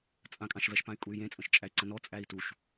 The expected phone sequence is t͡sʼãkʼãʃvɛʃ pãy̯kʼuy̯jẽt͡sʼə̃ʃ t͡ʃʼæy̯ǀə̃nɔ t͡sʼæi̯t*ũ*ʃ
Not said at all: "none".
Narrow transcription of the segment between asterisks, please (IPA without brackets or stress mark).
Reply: u